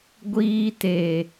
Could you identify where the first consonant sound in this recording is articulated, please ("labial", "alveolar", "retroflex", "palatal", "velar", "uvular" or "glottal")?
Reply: velar